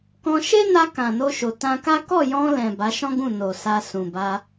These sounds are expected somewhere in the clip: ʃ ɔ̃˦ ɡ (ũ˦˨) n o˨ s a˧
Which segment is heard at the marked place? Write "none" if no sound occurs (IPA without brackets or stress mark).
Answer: ũ˦˨